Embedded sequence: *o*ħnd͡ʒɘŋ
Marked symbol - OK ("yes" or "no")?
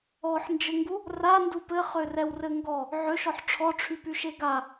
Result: no